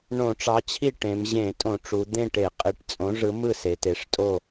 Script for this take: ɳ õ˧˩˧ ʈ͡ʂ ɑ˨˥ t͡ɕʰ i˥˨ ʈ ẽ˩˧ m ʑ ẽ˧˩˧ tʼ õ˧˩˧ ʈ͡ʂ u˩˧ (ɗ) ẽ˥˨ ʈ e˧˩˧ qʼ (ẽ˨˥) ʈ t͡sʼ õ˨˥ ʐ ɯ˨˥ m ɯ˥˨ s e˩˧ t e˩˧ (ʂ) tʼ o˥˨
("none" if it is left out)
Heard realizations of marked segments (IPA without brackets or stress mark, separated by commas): d̪, e˨˥, ʂ